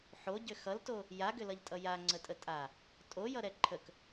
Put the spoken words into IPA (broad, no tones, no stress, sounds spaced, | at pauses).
ħ o ɟ ʏ x ʌ l t o | j a ɡ ʏ l ʌ ʎ tʼ ʌ j a ŋ͡ǀ ə tʼ ə tʼ a | tʼ o j ʌ ɾ ɛ ǃʰ ə k